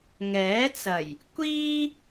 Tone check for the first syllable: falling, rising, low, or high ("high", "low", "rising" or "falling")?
rising